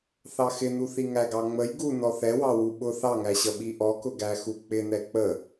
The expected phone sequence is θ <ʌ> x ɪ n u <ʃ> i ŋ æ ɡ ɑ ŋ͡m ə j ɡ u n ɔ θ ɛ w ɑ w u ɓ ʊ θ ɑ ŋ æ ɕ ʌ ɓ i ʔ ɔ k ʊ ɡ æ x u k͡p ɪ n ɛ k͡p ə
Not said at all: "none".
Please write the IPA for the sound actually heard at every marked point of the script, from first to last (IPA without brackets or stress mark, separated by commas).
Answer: ɑ, θ